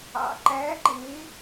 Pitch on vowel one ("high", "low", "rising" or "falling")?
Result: low